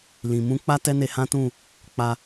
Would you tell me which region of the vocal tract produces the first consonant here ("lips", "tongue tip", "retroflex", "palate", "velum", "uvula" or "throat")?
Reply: tongue tip